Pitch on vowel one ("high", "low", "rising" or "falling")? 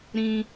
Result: high